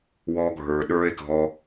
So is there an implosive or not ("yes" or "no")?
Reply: yes